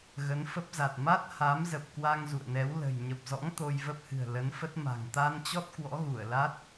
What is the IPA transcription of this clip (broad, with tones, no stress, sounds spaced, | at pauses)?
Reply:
ɣ ə˨˦ n f ə˦˥ p̚ z a˨˩ t̚ m a˦˥ t̚ h a˨˦ m z ə˨˩ p̚ k w a˧ ŋ z ṵ˧˨ ə̯ n ɛ˨˦ w l ə̤˨˩ j ɲ ə˨˩ p̚ z ɔ̰˧˥ ŋ t̪ o˧ j v ə˦˥ p̚ h ɨ̤˨˩ ə̯ l ə˨˦ n f ə˦˥ t̚ m a̤˨˩ ŋ t̪ a˧ n t͡ɕ ɔ˦˥ t̚ k w ɔ̰˧˥ ɣ u˧˩ ə̯ l a˦˥ t̚